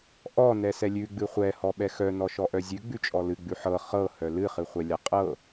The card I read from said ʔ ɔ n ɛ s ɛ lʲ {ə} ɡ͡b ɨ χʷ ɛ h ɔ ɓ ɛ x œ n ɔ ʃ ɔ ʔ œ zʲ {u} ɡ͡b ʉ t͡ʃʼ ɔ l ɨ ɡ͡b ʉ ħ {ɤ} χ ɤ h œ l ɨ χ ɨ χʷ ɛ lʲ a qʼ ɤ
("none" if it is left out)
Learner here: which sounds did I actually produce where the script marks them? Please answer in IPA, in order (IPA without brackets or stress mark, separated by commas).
ʉ, ʉ, ɤ